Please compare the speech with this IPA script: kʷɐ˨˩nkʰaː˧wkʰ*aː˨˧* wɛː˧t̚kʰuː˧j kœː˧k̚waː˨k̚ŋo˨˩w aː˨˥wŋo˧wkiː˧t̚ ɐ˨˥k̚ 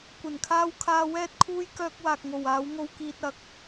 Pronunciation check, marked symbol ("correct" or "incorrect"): incorrect